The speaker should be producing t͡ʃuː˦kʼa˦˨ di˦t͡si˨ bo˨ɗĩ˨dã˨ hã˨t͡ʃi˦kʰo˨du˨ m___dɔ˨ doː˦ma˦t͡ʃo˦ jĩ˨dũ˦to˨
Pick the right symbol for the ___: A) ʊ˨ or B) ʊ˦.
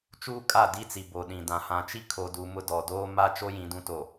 B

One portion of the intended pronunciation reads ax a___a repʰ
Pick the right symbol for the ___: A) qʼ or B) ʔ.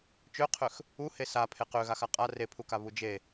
A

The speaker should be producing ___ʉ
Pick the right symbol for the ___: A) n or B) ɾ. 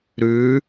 B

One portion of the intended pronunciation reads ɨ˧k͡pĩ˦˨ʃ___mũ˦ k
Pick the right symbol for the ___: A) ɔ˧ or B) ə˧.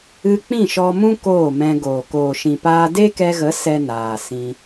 A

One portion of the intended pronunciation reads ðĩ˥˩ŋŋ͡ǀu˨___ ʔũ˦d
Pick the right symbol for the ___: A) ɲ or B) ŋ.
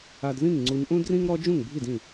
A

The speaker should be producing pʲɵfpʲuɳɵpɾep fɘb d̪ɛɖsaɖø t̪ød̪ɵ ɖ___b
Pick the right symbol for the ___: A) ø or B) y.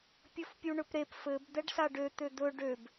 A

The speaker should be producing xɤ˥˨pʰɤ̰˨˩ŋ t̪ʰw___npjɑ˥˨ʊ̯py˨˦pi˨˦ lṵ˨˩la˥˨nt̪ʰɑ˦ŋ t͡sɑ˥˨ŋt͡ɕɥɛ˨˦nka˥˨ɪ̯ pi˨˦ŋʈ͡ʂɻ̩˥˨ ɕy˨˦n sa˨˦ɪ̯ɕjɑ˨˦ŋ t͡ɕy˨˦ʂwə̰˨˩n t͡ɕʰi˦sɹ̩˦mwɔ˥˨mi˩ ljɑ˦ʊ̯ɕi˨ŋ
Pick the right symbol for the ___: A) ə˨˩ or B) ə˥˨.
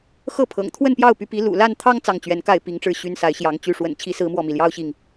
B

